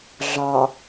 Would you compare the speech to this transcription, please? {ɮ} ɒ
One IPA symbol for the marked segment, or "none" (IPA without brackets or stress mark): ɮ